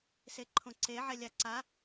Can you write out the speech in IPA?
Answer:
seǃʰõǀe ʕɛlʲaǀa

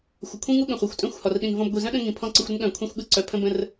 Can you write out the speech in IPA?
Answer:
xʷɪ˨kʷʰĩ˦ŋu˦ ɠə̃˨χʷi˨xʷtʼœ̃˦˨xʷ hɒ˨rɗĩ˨nvɔ̃˧b ɡʷi˨zœ̃˦ɗə̃˧ ŋĩ˨pʰɔ̃˧ǀə˧xʷɾə˦n ɠœ̃˨kʷʰĩ˧xʷɠɯ˧ ǀœ˨pʰə̃˧bə̃˧r

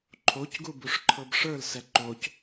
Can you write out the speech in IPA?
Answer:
ǃʰocɡubuʂǃʰɤb ʂə˞lsɛ ǃoc

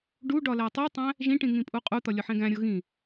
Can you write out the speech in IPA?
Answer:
ɖu ɖɒlætˤutˤæ̃ | ʒĩʈĩ ŋĩpʼuqʼut̪ɒ lʲɒħẽɡæ̃ɾʲo ɣĩ

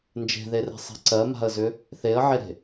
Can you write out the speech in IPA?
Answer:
nd͡ʒe̤ðere̤sˤe̤ ǀɜma̤ə̯zʏ | θeə̯ʕeɾe̤

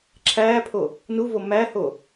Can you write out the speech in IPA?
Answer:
ǁʰæːpʰo | nuvo mæho

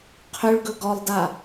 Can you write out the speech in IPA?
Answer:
qʰʏɭɡɵ ɡɔlˠda

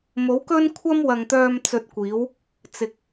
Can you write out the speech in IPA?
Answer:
mo˨˥wkɵ˥n kʷʰɐ˥mwɐ˨ŋt̪œː˧m t͡sɵ˧t̚kʷiː˨˥w | t͡sɪ˨k̚

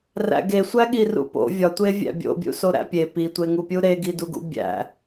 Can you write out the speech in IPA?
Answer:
ræ̰ɡe sʷæɠirṵpo̰ vʲɒtʷe vʲæ̰bʲo̰bʲṵso ɾæ̰pʲe pitʷeŋupʲu ɾeɡiduɡṵ bʲæ̰

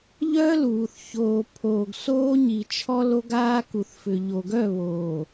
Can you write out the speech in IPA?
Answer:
ʎœː˦luː˨θ çoː˨pʰoː˨ɡ soː˦ɲi˨t͡ʃʰɔ˦ lo˦ɡaː˦ku˨θfʏ˨ ʎo˨ɡœ˦˨βoː˨

